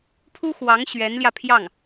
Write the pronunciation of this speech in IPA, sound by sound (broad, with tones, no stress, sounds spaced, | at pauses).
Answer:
pʰ u˥ x w ɑ˧˥ ŋ ɕ ɥ ɛ˧˥ n l j ä˧ pʰ j ɑ˥˩ ŋ